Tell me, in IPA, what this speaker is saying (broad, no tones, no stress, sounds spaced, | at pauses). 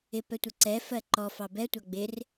ɪ p ɛ tʷ ə ǀ ɛ f ɜ ǃ ɔ f ɑ b ɛ tʷ ɑ ɡ͡b ɪ r